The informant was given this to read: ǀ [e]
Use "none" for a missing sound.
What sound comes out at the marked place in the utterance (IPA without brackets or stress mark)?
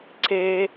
e